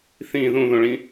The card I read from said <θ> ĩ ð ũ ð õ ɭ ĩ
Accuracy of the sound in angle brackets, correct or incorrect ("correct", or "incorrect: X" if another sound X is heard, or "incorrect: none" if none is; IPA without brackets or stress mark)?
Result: correct